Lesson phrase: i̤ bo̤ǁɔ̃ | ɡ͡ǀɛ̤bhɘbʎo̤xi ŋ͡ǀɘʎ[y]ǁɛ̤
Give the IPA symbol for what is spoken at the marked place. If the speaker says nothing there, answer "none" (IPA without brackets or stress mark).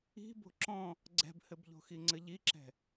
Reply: i